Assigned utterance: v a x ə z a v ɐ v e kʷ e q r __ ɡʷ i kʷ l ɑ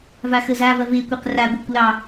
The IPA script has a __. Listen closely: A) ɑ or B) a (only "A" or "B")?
B